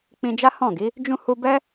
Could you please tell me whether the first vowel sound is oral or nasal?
nasal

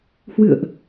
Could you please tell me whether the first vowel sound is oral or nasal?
oral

